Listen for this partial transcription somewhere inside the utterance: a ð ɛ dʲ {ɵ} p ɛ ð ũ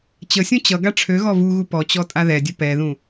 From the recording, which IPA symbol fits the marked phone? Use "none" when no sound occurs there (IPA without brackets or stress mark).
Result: ɵ